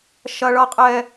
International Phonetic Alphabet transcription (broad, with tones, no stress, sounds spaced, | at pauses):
ʃ ɐ˨ ɭ ʌ˨ qʼ ɛ˨